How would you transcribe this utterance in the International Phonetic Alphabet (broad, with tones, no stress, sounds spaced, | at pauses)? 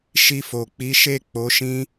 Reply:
ʃ i˧ f o˨ k͡p i˨˦ ʃ e˦˨ k͡p o˨˦ ʃ ĩ˦